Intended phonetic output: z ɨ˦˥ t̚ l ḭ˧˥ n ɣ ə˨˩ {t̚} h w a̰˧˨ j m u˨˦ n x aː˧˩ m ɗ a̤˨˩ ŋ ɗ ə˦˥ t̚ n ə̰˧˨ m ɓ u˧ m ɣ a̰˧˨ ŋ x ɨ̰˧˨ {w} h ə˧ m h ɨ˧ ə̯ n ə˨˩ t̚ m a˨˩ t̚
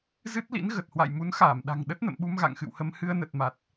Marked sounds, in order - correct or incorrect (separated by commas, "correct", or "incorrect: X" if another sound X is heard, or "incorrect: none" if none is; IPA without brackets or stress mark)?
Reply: correct, correct